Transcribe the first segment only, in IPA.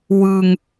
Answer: w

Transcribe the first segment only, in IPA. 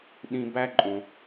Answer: ɗ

